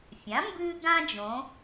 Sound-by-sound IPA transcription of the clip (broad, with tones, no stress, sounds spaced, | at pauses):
fʲ ã˩˥ m b ɨː˥ ɡ ã˥ d͡ʒ õ˩˧